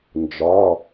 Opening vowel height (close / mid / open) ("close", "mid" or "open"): open